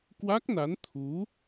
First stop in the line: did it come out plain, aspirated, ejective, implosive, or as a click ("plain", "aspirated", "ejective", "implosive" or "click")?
plain